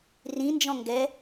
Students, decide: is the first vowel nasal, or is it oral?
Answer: nasal